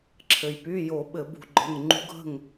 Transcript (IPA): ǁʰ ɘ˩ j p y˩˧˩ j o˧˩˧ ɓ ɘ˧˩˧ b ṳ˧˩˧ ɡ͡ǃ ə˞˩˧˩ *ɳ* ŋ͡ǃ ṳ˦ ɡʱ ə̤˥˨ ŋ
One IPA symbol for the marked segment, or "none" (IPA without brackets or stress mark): ŋ